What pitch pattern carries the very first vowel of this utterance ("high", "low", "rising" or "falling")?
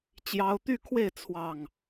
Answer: high